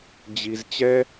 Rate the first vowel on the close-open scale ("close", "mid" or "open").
close